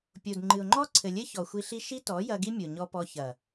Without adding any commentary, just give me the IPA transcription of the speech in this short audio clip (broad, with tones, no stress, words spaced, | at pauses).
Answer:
pʲo˨dŋ͡ǃɨ˨ʊ̯ŋ͡ǃɔ˦ ǀʰɘ˨lʲɘ˦ çɔ˨xʷi˧ɬi˦ ʃi˦tɔ˨˦jɐ˧ ɡi˦mʲo˨ɲɔ˧pɔ˧ çɐ˨